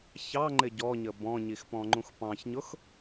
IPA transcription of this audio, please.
çɑŋ͡ǃɪ ɟɔɲə bɔ̃ɲixpɔ̃ŋ͡ǃũx pɑ̃çɲʊx

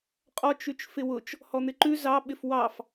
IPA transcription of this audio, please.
qʼɔt͡ʃ ʉt͡ʃfɪwʊt͡ʃ | hɔn̪ɪǃʉ zɑ ɓɪfwɑf

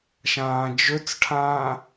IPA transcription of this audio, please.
ʃãːd͡ʒɵt͡sʈʰãː

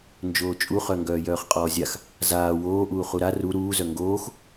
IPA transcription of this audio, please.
nd͡ʒoːt͡ʃʼuχœ ŋɡœːjœːχqʼɔːzʲax | zaː woːʔuː χuɾa ru ɾuːzœ ŋɡoːx

